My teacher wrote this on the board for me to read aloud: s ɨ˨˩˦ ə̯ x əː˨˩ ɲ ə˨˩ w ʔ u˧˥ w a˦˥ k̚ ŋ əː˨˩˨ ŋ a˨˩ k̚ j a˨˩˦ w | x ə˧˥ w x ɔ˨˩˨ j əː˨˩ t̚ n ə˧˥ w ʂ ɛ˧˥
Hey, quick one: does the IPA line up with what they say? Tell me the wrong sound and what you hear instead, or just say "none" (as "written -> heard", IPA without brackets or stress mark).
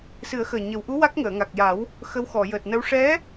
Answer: none